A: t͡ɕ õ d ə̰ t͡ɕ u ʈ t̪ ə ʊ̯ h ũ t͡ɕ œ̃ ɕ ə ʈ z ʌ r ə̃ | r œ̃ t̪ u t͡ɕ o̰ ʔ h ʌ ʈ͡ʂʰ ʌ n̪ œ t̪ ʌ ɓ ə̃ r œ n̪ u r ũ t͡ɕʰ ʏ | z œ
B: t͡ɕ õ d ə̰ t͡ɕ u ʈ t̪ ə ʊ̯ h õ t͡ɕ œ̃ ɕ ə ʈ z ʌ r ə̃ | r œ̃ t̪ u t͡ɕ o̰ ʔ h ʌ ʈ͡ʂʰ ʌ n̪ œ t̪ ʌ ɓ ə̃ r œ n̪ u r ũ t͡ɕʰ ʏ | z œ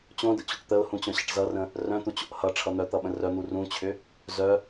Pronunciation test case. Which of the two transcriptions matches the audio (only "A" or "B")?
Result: A